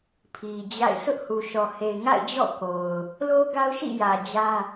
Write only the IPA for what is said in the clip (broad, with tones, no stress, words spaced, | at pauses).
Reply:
pʰi˨d͡ʑa̰˦˨ɪ̯ sʊ˦ʔhu˨ʃɔ˨ he˨ɪ̯ŋa̰˦˨ɪ̯d͡ʑɔ̰˦˨ ko˨ʊ̯ | lo˦ɡa˦ʊ̯ ʃḭ˦˨jä˨ d͡ʑä˦